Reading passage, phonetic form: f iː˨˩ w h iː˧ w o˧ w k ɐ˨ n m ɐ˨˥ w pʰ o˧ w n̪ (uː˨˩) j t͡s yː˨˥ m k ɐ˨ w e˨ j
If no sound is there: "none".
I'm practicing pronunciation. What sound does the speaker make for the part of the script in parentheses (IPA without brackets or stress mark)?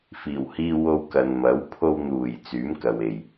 uː˨˩